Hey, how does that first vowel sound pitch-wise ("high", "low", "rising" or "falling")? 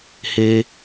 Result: high